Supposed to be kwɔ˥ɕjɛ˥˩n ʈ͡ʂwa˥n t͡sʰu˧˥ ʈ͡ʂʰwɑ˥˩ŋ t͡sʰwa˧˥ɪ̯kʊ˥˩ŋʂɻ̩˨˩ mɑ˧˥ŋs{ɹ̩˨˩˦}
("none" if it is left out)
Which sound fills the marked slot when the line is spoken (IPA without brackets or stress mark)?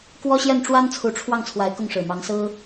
ɹ̩˥